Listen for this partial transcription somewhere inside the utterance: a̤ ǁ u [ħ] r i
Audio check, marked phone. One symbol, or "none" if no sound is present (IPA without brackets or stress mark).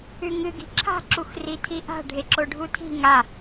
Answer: x